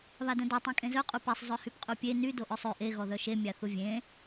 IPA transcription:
β a d œ̃ d ɔ tˤ ĩ kʼ ẽ z œ qʼ u p ɛ sˤ zˤ œ h y p qʼ u pʲ e n y d o ʔ œ sˤ ø ʔ e ɣ ɔ ð œ ʃ e mʲ a θ u vʲ ẽ

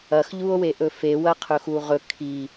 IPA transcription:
ɐ x ʎ u o̯ w e ʔ ɵ f e w ɐ qʰ ɵ x u ʁ ɵ kʰ i

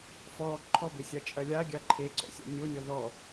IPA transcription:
f ɔ ǃʰ ɔ b e sʲ a t͡ʃʼ ɐ lʲ a ɡʲ a ǃʰ e ǀ ɔ̰ sʲ ɔ̰ nʲ o nʲ ɔ ð ɔ

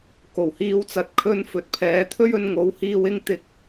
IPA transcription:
k o˨˩ w h iː˨˧ w t͡s ɐ˨˥ t̚ kʰ ɵ˧ n f ɵ˨˥ t̚ pʰ ɛː˨˥ t̪ʰ ɵ˥ ɥ ɵ˧ n ŋ o˨˥ w h iː˧ w ɪ˥ ŋ t̪ ɪ˧ k̚

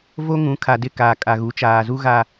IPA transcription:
v o˦ ŋ ũ˨˦ kʰ a˨ d ɪ˦˨ k aː˨ kʼ a˨ ɣ u˨˦ t͡ʃ aː˨ z u˦ ɣ a˦

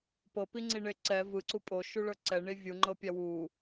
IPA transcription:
p ɤ p i ŋ͡ǀ i ɳ e ǀ ɛ v ɯ ǀ u pʼ o ʃ u ɭ ɤ ǀ ɛ ɳ i vʲ u ŋ͡ǃ ɤ pʲ a w u

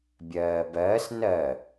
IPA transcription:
bʲ ɜː b ɜː s n ɜ

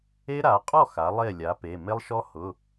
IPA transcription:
e˦ ɾ a˩˧ qʼ ɔ˥˩ x a˩˥ lˠ e˥˩ lʲ a˩˥ p e˩˧˩ m e˦ lˠ ʃ ɔ˦ h ʊ˩˧˩

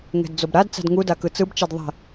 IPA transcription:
ŋ ɛ̤ d d͡z o b ɾ a d t͡s a̤ d ŋ u d a k ɯ t͡s ɯ b t͡ʃ e d ðˤ ɛ̤

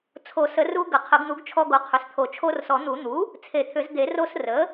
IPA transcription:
t͡sʰ o˨˩˦ s ə˨˩˦ r u˧ ɡ ə˨˩˦ qʰ ə˨˩˦ ɡ n̪ u˩˥ ɡ t͡ʃʰ ɔ˧ ɡ o˩˥ qʰ ʏ˩˥ s t̪ʰ o˨˩˦ t͡ʃʰ o˧ r s ɔ˨˩˦ n̪ u˨˩˦ n̪ u˩˥ | t͡sʰ e˨˩˦ t̪ʰ ʏ˨˩˦ z d̪ e˨˩˦ r o˧ s r ə˩˥

